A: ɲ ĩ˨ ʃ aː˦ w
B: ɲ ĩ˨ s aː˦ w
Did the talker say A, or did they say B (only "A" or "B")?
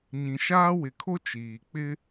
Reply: A